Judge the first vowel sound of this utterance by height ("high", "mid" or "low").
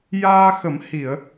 low